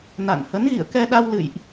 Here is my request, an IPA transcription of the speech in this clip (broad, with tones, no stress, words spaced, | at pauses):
na̰˧˨n hə˨˦nɣḭ˧˨ə̯kɛ˧ɗa˧w lɨ̰˧˨jʔ